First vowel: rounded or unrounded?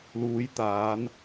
rounded